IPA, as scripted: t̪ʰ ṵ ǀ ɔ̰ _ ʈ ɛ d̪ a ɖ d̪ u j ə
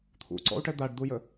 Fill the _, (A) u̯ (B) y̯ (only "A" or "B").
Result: A